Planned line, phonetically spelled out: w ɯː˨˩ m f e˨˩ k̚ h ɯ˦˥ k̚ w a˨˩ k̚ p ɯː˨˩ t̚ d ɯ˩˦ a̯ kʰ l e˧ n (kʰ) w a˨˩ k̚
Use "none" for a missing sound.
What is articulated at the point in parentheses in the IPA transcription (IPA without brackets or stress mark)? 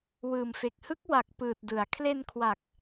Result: kʰ